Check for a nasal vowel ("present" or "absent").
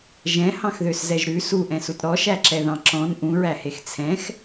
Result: present